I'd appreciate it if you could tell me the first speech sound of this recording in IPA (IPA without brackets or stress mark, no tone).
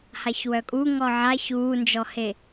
h